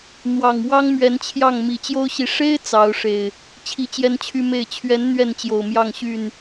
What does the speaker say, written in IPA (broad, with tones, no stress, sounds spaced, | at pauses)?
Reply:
n̪ w ɑ˨˩ ŋ w ɑ˦ ŋ m ɥ ɛ˨˦ n t͡ɕʰ j ɑ˥˨ ŋ m i˨˩ t͡ɕ j o˦ ʊ̯ ɕ i˨˦ ʂ e˦ ɪ̯ t͡s ɑ˨˦ ʊ̯ ʂ e˨˩ ɪ̯ | t͡ɕʰ i˦ t͡ɕ j ɛ˦ n t͡ɕʰ y˦ m e˥˨ ɪ̯ t͡ɕʰ ɥ ɛ˨˦ n n̪ ɥ ɛ˥˨ n t͡ɕ j o˨˩ ʊ̯ m j ɑ˥˨ ŋ ɕ y˥˨ n